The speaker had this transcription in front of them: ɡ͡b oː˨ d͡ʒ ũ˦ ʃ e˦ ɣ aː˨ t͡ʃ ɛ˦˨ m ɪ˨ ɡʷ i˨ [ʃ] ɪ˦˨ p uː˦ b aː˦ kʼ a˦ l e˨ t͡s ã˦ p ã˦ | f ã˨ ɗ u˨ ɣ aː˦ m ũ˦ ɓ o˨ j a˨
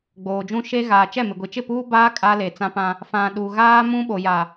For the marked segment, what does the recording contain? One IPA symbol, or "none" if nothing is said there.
t͡ʃ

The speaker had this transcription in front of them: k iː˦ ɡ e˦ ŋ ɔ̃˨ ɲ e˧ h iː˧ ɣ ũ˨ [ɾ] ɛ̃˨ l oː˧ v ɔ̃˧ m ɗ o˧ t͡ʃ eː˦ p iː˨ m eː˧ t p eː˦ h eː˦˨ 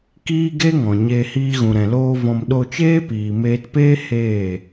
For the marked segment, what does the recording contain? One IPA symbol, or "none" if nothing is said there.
ɾ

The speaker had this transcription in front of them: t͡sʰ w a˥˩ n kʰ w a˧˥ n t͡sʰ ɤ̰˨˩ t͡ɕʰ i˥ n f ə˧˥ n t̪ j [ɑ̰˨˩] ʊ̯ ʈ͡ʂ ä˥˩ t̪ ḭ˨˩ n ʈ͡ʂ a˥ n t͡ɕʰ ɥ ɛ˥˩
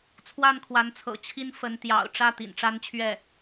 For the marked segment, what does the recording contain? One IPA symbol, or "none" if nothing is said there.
ɑ̰˨˩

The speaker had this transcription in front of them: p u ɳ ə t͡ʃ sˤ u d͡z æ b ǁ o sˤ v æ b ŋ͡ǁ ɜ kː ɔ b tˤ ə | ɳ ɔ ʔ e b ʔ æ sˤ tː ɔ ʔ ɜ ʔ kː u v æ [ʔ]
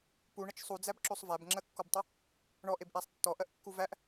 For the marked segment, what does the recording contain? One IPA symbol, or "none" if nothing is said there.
ʔ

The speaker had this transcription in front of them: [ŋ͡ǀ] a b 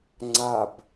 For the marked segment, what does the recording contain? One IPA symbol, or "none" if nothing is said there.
ŋ͡ǀ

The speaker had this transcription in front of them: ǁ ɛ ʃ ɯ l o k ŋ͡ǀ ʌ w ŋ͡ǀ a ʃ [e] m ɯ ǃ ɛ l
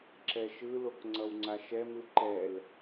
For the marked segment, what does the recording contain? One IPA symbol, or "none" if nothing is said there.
ɛ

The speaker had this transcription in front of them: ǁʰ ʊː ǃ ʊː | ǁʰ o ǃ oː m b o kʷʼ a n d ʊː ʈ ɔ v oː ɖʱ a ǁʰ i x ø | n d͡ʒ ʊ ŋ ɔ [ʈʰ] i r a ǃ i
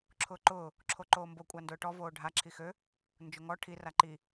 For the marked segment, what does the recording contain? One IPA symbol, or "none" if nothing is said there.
ʈʰ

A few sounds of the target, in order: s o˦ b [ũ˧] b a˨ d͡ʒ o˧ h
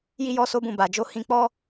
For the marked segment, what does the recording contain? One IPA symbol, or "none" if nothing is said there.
ũ˦˨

